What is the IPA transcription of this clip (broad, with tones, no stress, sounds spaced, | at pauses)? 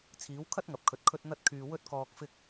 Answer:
t͡sʰ iː˨˥ w kʰ ɐ˥ t̚ ŋ ɐ˨ p̚ kʰ ɵ˨ t̚ kʰ ɵ˥ t̚ n̪ ɐ˥ t̚ kʰ yː˧ w ɵ˥ t̚ k ɔː˧ k̚ f ɪ˧ k̚